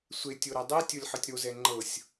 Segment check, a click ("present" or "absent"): present